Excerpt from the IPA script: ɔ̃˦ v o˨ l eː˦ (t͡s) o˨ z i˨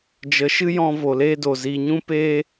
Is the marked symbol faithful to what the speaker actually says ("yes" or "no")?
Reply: no